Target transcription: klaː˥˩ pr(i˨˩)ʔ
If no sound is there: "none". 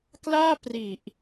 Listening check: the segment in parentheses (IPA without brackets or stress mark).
i˨˩